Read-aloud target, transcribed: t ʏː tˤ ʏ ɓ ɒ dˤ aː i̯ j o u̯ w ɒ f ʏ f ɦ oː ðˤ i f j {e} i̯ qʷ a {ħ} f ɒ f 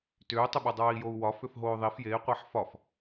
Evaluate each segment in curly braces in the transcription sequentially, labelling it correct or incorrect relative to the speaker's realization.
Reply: correct, correct

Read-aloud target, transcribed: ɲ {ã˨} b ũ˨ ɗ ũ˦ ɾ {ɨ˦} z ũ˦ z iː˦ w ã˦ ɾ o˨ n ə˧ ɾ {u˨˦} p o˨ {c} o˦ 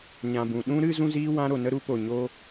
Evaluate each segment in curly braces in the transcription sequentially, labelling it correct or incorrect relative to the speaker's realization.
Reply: correct, correct, incorrect: u˦, incorrect: ɲ

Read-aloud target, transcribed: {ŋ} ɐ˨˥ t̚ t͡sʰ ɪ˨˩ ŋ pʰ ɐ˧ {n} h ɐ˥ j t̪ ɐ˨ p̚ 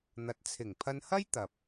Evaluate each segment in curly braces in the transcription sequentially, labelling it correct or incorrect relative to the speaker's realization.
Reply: incorrect: n̪, correct

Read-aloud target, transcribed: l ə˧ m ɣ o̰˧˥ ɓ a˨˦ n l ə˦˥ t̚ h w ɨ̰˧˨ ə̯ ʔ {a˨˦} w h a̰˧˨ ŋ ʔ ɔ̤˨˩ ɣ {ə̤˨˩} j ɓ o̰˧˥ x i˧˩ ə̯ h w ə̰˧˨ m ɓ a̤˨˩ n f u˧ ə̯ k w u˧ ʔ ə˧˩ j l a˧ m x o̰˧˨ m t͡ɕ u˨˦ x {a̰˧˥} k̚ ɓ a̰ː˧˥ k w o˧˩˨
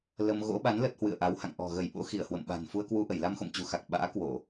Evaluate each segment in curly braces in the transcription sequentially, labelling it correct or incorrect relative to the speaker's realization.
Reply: correct, incorrect: ə˧˩, incorrect: a˨˩

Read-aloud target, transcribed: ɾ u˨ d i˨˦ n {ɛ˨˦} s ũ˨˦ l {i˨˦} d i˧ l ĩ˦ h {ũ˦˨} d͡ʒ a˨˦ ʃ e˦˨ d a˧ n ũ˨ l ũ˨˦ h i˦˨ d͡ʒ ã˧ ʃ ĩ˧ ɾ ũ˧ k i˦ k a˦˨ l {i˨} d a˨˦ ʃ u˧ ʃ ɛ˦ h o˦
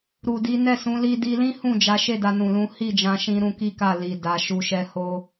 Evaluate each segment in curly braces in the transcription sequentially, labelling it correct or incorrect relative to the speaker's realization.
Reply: incorrect: ɛ˦˨, incorrect: i˧, correct, correct

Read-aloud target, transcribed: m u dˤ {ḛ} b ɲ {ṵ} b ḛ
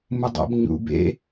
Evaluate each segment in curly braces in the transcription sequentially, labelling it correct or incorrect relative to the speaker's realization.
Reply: correct, correct

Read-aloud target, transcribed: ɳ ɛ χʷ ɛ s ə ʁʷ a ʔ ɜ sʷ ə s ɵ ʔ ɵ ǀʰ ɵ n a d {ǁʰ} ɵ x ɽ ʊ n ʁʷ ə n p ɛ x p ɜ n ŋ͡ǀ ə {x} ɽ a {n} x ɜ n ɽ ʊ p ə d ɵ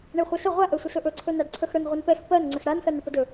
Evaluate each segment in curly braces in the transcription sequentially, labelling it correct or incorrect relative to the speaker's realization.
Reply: incorrect: ǀʰ, correct, correct

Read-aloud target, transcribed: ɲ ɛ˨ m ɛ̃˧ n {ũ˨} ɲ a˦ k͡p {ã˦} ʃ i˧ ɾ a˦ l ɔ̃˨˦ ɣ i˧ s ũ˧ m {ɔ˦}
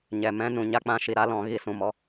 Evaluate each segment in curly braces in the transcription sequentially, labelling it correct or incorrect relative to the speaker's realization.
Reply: incorrect: ũ˧, correct, correct

